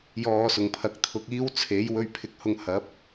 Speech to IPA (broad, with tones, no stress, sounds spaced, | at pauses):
j ɔː˧ s ʊ˨˩ ŋ pʰ ɐ˨˥ k̚ t̪ʰ ʊ˧ k̚ iː˥ w t͡sʰ e˨˥ j w ɵ˧ ɥ pʰ ɪ˨˥ k̚ h ʊ˧ ŋ h ɐ˨˥ p̚